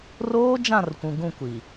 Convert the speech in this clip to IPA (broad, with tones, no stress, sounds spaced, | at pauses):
r oː˦ d͡ʒ ã˦˨ r kʷ ũ˨ ɡ ũ˦˨ kʷ i˨